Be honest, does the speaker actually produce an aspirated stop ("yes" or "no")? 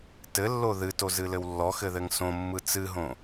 no